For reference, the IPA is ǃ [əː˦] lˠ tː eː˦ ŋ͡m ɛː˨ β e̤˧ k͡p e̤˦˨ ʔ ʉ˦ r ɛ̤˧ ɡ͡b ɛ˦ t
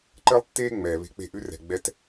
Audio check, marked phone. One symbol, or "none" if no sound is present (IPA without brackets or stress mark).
əː˦